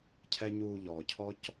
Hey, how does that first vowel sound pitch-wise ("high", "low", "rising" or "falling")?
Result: high